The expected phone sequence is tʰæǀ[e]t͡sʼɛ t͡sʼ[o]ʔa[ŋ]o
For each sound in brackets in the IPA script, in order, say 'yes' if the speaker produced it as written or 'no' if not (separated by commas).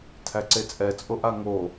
yes, yes, yes